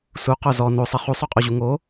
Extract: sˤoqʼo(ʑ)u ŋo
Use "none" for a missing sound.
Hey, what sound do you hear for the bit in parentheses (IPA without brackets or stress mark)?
ʑ